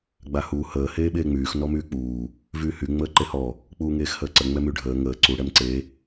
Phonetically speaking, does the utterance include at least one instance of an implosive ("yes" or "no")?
yes